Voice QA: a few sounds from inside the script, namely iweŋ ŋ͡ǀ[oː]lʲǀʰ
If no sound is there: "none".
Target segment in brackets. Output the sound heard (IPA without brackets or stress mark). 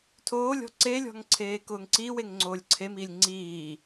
oː